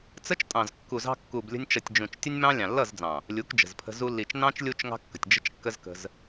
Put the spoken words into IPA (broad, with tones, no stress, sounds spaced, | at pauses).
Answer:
t͡s ə˦ t͡ʃ tʼ ɑ̃˨ z kː u˨ z ɑ̤˧ kː u˨ b lʲ ə̤˧ nʲ t͡ʃ ʌ˨ tʲ d͡ʒ ũ˨ t͡ʃ tʲ ə˦ nʲ m ɑ̃˦ lʲ ɑ̃˨ lː ʌ˦˨ z d͡z ɑ̃˨ | lʲ u˨˦ k d͡ʒ ə̤˨ z pʰ ə̤˧ z u˧ lː i˨ t͡ʃ n ɑ̃˦ t͡ʃ lʲ u˧ t͡ʃ ŋ ɑ̤˦ kː ə̤˨ tʲ d͡ʒ ə̤˧ t͡ʃ kː ə˧ z k ə̤˧ z